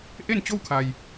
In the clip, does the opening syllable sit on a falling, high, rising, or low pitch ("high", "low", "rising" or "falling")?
falling